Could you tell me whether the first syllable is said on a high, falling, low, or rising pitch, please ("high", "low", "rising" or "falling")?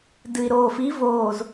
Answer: low